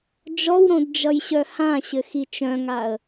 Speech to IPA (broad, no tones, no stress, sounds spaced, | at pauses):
d͡ʒ ɔ w ɾ õ d d͡ʒ ʌ j ɕ œ h ã ɕ ɘ x i t͡ʃ œ̃ ŋ a ə̯